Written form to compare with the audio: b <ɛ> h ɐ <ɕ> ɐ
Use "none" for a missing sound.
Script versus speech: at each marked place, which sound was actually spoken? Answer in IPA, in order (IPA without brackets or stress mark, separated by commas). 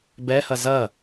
ɛ, z